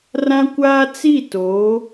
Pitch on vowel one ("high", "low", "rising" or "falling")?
high